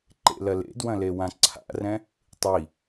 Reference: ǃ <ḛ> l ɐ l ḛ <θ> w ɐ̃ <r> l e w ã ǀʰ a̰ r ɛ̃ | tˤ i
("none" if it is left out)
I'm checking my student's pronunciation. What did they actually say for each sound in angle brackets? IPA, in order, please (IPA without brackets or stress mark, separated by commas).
ḛ, d, none